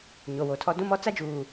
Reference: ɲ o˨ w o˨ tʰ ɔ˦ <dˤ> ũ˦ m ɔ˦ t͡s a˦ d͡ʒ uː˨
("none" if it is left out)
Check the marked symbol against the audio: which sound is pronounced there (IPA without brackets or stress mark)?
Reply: d